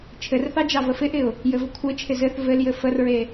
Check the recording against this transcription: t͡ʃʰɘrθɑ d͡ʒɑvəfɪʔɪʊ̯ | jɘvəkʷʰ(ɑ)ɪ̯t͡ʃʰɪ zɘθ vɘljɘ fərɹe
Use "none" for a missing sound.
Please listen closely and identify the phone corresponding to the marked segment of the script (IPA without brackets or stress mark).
ə